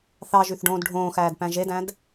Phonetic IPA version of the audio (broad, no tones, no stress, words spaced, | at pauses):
θɑʒyθɖõːd ɖʱõːxæːdpæ̃ ʒedæ̃d